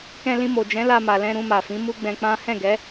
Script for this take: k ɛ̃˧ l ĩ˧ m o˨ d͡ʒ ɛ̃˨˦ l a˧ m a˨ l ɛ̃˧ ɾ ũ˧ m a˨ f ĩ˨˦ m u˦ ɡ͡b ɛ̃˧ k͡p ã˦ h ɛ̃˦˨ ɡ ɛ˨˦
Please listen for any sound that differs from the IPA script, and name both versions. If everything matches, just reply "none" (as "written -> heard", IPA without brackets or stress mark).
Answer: none